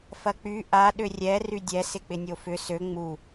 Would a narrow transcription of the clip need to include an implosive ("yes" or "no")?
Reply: yes